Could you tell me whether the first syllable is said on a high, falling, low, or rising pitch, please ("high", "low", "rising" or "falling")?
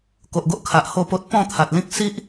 low